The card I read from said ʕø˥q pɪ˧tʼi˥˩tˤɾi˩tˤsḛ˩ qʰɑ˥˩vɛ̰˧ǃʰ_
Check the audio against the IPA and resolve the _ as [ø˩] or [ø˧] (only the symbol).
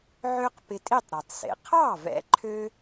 ø˧